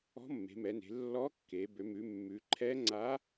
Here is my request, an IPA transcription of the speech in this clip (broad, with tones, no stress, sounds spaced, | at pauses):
ɔ̤˧˥ mː e̤˩˧ m ɛ˩˧ n e̤˩˧ lː ɔ˧˥ kː e˩˧ b ø˩˧ m ʉ˩˧ mː ʉ˩˧ ǃʰ ɛ˧˥ ŋ͡ǀ a˧˥